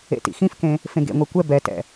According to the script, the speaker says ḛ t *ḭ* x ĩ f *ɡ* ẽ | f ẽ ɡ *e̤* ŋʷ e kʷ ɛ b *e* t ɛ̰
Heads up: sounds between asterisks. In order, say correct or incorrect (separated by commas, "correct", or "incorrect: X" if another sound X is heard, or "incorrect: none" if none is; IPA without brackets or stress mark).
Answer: correct, incorrect: k, incorrect: ḛ, incorrect: ɛ